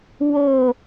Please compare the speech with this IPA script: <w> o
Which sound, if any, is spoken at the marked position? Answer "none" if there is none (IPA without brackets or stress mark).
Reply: w